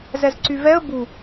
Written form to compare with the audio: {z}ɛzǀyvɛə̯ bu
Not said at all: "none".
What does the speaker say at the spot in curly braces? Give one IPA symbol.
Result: z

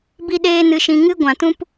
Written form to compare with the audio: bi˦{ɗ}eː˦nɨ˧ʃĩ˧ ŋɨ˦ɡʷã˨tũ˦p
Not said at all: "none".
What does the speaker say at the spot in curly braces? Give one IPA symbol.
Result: ɗ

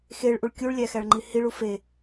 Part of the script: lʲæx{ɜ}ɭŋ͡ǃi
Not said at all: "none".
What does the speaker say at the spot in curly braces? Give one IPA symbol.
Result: æ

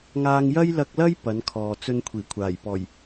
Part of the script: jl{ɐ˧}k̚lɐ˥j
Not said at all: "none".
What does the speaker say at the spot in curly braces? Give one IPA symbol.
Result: ɐ˧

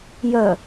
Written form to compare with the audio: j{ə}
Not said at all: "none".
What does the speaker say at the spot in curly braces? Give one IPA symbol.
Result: œ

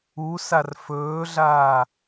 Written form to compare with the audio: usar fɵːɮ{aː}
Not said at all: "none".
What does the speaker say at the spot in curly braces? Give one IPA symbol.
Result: aː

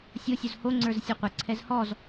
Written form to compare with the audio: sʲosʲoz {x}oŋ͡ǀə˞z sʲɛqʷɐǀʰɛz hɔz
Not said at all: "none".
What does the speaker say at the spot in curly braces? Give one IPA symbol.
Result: h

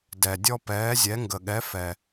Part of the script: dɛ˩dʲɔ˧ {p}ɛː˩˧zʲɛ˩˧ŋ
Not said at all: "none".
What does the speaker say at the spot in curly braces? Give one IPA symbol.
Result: p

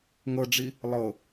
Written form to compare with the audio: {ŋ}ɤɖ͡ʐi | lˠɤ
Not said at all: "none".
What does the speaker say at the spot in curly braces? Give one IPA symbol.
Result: ŋ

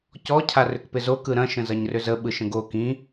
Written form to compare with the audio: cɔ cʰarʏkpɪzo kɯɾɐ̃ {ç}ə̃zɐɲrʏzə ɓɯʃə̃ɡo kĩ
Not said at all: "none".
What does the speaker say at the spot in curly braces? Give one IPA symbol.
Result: ʃ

